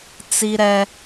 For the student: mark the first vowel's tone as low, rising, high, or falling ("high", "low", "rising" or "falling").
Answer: high